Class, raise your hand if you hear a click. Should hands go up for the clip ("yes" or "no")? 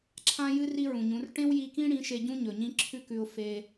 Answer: yes